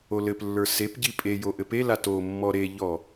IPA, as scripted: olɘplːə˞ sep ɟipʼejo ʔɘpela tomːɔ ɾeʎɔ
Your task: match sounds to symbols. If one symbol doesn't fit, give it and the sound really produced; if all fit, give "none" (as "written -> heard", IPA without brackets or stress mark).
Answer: none